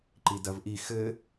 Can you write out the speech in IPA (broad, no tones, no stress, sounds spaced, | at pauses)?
ǃ i d ɐ v ʔ i x ɘ